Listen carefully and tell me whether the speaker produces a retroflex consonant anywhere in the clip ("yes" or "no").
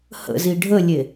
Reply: yes